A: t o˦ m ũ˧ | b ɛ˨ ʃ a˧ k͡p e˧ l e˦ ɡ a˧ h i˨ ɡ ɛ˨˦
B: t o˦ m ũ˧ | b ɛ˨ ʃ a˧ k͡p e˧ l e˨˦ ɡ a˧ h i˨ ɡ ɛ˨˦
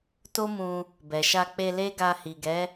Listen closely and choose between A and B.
A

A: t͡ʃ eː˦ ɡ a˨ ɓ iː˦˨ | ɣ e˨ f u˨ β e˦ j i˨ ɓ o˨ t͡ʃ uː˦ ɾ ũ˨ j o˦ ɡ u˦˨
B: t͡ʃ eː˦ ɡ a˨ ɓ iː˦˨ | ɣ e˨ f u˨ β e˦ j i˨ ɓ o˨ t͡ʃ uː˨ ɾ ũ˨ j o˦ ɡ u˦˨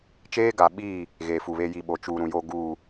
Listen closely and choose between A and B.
B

